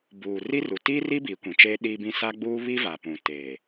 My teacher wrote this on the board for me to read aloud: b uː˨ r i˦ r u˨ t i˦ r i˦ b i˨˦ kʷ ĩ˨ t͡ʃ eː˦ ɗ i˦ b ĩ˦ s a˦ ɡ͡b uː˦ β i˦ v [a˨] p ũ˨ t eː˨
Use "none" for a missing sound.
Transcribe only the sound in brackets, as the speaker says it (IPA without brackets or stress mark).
a˨